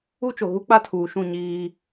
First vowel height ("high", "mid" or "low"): high